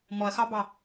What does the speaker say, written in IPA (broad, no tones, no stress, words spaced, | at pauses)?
mɔɐ̯xɑbɑ